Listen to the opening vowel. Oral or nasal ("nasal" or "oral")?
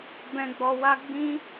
nasal